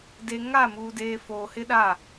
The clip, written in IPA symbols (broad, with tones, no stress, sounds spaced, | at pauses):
d e˨ ŋ a˦˨ m uː˨ d eː˨ f oː˨ h ɪ˦ ɗ a˦˨